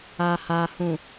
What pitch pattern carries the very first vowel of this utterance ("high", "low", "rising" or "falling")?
low